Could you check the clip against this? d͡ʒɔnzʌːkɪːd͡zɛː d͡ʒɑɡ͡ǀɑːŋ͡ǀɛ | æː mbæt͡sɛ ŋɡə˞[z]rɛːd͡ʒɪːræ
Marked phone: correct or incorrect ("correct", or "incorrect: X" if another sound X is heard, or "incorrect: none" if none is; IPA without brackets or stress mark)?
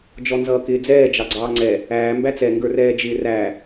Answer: incorrect: none